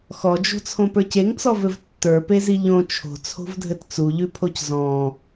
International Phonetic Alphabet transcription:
x ɔ d͡ʒ o̤ t͡sʰ õ p ə˞ c e ŋ t͡s ɔ v ɘ v tː ə˞ p e z i ʎ õ t͡ʃʰ o̤ t͡sʰ o̤ v dʱ ɘ t t͡s u ʎ ʉ pʰ o c z ɔ̃

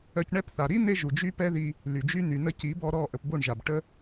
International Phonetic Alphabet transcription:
œ˧ c ɳ ɛ˦ p θ a˨ ɾ i˦ n̪ e˦ ʒ u˨ d͡ʒ y˦ p ɛ˦ ð i˧ | l y˨ d͡ʒ y˦ n̪ y˨ n ə˧ c i˨˦ b ɔ˧ ɾ ɔ˦˨ ʔ ə˧ p b o˦˨ ɳ ʒ a˨ b ʈ ə˦

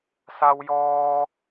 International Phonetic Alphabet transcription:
s a˧ w j ɔː˧

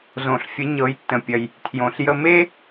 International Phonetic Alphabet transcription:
z õ˩ ɬ fʲ ə˩˧ ɲ ɤ˩˧ j tː ə̃˩ pʲ ɐ˩ j | tʰ j õ˩ ɬ j ə˧ m e˥

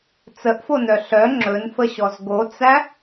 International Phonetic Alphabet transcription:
t͡s ə ʔ f o n œ ɬ œ ŋ͡ǁ ɵ n f ə ɕ ɔ z ɡ o t͡s æ

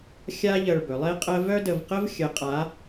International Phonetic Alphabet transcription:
xʲ a˥ ʎ ɜ˧ ɭ b ɵ˩˧ lˠ e˥ qʼ ɜ˥ v œ˥ d ə˧ v q ə˥ v xʲ ə˧˥ qʼ a˧˥

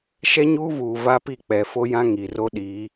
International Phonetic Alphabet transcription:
ʃ ɛ˦ ɲ uː˦ v uː˨ v a˦ p i˦˨ k͡p ɛ˨ f o˦ j ã˦ ŋ i˨ r o˦ ɗ iː˨˦

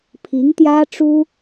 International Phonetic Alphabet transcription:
pʰ i˧˥ ŋ t̪ j ä˥ ʈ͡ʂ u˥

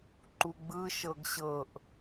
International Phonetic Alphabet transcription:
ǃ u ɡ͡b ɯ ʃ ɤ ɡ ɕ ɤ ʔ

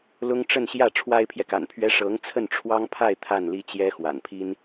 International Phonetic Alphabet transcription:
l ʊ˥ ŋ ʈ͡ʂ ə˥˧ n ɕ j ä˥˩ ʈ͡ʂʰ w a˥ ɪ̯ pʰ j ɛ˨ k a̰˨˩ n pʰ ɥ ɛ˥ ʂ ɤ˧˥ ŋ t͡sʰ ə˥˩ n ʈ͡ʂʰ w ɑ˥ ŋ pʰ a˥˧ ɪ̯ t̪ʰ a˥˩ n l i˥ t͡ɕ j ɛ˥ x w a̰˨˩ n pʰ i˥ n

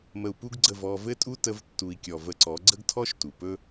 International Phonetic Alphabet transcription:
m ə˧ u̯ p u˦ ɡ ɡ͡ǀ ə˦˨ v ɔ˦ v ɘ˦ tʼ u˦ t ə˦ v tː u˧ i̯ kʲ ɔ˧ v ə˧ ǀ ɔ˨˦ ɡ͡ǀ ə˦ ɡ tʰ ɔ˦ ʃ t u˨ p ɵ˦

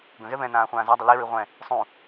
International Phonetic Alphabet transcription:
ɡ ə̃ ɣ ɛ β ɛ̃ n ãː χʷ ãː z a dˤ ə l i ɹ i ʁʷ ɛ̃ | sˤ ũ

